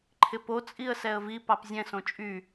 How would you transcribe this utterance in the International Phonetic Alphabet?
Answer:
ǃʰɪpo t͡sʼiə̯sɛə̯vi pɑpzʲɛ̃s õt͡ʃʼy

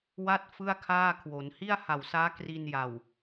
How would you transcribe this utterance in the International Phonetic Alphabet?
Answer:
wa˥˩t̚ fɯ˥˩a̯ kʰaː˥˩kʰwo˩˦n hi˥˩a̯ha˨˩wsaː˦˥ kri˧nja˨˩w

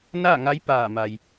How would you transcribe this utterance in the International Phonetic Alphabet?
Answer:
naː˥˨ŋa˧˥j paː˧˩ma˩j

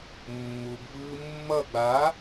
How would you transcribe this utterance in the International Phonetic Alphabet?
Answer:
mːuɡ vɯːmːʌ ɡ͡ba

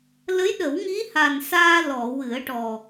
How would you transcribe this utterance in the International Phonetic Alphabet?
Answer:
lə˧˥jɗə˨˩˦wŋi˧˥ha˨˩n saː˧lɔ˨˩˨ wɨ˨˩˦ə̯ʈɔ˨˩

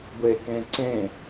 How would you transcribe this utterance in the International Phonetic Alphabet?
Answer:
ɡʷekẽǀẽ

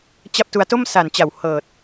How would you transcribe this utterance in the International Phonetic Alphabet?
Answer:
t͡ɕa˦˥p̚tu˧a̯to˥˩m sa˨˩nt͡ɕa˨˩w hɤː˨˩t̚

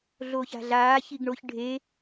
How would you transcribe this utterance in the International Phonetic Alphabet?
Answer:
ɮoːça̤ɮaː çiɡɳoç ɖʱe

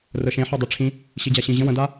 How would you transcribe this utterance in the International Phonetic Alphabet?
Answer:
rəʃẽ ħɔdˤeʈ͡ʂʰĩ | ɕid͡ʑaɕĩ ʑə̃ wə̃da

